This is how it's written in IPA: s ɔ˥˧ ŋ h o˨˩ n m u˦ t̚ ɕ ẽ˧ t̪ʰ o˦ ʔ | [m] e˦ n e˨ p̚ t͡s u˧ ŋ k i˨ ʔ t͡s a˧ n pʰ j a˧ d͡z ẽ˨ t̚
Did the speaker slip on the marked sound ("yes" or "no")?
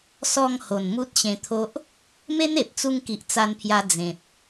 no